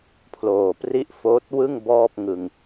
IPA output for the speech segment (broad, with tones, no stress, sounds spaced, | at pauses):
pʰ l oː˨˩ p r i˥˩ ʔ f oː˦˥ t̚ w ɯ˥˩ ŋ b ɔː˥˩ p̚ ŋ ɯ˨˩ ŋ